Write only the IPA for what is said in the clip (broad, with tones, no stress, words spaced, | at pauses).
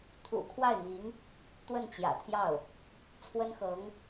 t̪ʰṵ˨˩ kʰwa˥˩ɪ̯mi˧˥ŋ | t̪wə˥˩nt͡ɕjä̰˨˩t̪ʰjɑ˥˩ʊ̯ | t͡sʰwə˥nxɤ˧˥ŋ